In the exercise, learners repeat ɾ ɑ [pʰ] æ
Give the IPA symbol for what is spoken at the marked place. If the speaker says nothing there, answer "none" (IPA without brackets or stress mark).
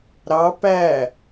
p